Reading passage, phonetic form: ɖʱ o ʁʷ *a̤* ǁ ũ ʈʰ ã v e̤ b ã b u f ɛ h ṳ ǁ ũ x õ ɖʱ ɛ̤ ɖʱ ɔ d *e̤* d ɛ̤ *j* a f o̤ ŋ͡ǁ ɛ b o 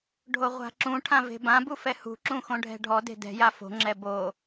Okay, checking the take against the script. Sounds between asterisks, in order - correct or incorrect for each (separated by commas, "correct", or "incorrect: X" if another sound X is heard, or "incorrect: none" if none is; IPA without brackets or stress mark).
correct, correct, correct